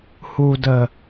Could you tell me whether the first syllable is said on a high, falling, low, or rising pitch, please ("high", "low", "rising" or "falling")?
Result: low